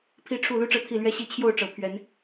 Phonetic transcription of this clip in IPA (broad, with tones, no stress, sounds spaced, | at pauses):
pʰ i˦ ʈ͡ʂʰ u˥˨ l u˦ ʈ͡ʂ ɤ˥˨ t̪ʰ i˥˨ l ɥ ɛ˦ ɕ i˨˦ t͡ɕʰ j o˥˨ ʊ̯ ʈ͡ʂ ɤ˨˦ pʰ ɥ ɛ˨˦ n